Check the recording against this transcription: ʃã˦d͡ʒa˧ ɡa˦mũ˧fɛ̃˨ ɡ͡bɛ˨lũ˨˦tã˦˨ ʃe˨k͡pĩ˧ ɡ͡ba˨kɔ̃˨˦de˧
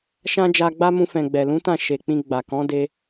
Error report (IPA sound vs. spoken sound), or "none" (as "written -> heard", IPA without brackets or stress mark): ɡ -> ɡ͡b